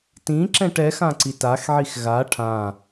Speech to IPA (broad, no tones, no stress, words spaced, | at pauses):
tĩǁɛ̃ʈ ɛxã ǀitaxʕix ɣa ʈʰã